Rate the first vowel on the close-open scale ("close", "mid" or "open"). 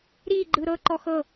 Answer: close